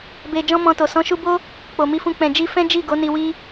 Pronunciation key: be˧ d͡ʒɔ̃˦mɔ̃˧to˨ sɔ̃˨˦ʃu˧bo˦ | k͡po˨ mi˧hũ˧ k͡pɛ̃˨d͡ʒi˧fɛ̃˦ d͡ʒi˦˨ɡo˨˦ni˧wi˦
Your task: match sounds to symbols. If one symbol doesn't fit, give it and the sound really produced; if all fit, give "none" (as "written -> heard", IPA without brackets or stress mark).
h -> f